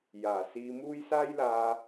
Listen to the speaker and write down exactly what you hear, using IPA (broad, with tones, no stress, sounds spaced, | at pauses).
j aː˨˩ s iː˧ m uː˥ j s aː˥ j l aː˧